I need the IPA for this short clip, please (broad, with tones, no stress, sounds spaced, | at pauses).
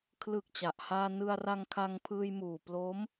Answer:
kʰ l ɯ˨˩ k̚ t͡ɕ a˨˩ ʔ h aː˧ n ɯ˧ a̯ r a˧ ŋ kʰ a˧ ŋ pʰ ɯː˧ j m uː˨˩ p l o˦˥ m